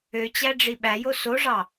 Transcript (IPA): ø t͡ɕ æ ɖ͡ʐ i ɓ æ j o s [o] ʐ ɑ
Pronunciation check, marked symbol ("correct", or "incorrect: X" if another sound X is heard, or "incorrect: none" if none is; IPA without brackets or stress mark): correct